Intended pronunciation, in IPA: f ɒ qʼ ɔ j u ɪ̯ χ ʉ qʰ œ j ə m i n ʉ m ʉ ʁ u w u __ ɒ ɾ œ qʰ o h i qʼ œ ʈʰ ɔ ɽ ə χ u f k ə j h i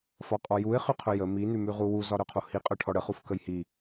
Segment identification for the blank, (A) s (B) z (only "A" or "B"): B